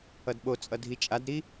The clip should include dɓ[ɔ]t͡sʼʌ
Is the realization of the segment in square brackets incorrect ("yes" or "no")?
yes